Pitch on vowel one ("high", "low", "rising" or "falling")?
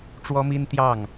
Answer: high